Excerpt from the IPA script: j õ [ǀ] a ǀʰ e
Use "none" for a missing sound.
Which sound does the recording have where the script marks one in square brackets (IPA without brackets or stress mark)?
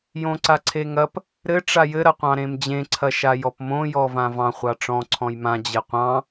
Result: ǀ